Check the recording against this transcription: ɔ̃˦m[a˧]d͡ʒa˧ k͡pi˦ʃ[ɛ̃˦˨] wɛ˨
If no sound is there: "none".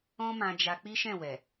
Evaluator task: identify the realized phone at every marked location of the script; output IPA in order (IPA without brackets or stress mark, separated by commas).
ã˧, ɛ̃˦˨